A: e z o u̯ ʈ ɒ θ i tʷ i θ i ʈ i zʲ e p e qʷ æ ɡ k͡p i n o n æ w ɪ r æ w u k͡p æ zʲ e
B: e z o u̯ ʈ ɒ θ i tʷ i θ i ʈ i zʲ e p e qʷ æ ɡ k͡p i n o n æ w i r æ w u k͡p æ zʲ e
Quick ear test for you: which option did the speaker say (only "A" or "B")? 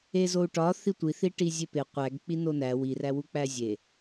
B